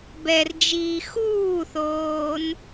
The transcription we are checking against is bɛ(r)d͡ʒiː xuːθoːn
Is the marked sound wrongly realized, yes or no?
no